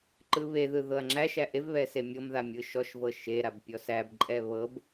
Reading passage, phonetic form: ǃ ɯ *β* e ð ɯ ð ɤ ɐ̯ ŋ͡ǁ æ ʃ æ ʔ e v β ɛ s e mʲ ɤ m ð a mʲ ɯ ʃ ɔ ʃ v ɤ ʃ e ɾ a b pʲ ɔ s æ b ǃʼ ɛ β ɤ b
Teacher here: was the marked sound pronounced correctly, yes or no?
yes